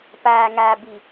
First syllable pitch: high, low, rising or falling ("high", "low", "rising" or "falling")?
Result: low